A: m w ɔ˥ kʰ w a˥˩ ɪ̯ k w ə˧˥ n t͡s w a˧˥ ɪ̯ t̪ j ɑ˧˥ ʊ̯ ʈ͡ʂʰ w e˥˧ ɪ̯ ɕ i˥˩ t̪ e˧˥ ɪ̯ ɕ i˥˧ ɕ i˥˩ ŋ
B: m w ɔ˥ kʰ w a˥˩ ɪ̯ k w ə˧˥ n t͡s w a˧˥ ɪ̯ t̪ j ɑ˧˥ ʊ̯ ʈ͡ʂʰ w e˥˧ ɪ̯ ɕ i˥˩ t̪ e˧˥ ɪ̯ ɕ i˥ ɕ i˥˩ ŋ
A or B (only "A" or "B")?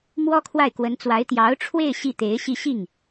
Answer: A